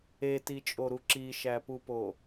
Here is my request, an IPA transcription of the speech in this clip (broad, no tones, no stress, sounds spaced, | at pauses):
e t i t͡ʃʼ o ɾ u ǁ i ʃ æ p u p o